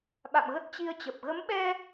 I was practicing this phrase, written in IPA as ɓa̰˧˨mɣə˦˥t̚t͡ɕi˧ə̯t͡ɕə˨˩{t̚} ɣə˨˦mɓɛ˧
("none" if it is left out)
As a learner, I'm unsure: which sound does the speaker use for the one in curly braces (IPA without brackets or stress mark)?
p̚